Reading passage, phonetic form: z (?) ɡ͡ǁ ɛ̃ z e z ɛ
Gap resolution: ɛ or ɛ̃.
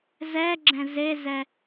ɛ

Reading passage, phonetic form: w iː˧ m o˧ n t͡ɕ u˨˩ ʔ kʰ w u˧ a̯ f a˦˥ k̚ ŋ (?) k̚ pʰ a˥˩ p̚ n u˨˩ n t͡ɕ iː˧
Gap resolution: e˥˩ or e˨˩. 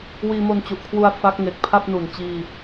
e˨˩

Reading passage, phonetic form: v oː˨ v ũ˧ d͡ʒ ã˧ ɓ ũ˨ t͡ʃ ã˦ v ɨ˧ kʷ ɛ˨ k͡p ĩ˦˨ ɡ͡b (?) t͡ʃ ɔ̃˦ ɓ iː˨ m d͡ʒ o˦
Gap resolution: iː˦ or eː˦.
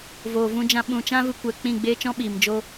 eː˦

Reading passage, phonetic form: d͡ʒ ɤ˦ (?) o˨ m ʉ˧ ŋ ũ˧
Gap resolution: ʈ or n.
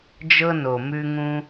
n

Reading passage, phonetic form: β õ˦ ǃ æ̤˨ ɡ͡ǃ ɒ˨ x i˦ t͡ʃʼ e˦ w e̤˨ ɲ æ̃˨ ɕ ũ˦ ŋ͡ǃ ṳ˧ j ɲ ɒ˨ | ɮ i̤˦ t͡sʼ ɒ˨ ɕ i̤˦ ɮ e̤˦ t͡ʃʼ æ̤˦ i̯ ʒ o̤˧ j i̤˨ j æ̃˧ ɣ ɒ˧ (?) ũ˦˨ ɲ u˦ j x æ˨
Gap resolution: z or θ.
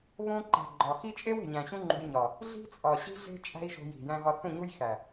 θ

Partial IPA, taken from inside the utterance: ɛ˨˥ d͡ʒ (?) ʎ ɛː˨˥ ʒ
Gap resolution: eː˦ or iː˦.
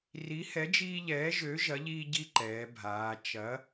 iː˦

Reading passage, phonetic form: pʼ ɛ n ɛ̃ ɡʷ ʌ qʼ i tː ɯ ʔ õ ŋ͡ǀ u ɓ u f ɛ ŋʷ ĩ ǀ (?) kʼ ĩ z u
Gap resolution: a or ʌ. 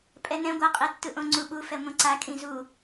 a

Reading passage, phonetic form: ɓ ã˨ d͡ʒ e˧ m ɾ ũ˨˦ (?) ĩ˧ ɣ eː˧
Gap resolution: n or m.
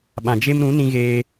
n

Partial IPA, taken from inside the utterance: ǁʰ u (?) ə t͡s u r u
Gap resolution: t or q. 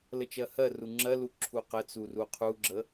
q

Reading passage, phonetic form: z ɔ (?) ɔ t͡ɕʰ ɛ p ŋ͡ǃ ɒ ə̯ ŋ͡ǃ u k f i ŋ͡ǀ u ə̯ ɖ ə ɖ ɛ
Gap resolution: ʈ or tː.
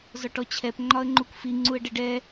ʈ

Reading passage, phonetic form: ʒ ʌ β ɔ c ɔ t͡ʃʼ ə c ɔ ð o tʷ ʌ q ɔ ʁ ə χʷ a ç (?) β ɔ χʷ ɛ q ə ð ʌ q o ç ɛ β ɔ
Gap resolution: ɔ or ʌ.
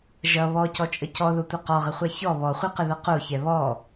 ɔ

